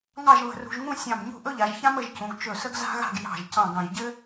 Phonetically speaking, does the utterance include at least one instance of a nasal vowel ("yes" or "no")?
yes